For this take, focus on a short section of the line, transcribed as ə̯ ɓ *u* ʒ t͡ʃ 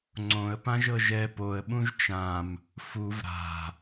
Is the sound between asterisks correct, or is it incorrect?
incorrect